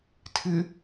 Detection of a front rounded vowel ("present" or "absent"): absent